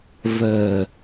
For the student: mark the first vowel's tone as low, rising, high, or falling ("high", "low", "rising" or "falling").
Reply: low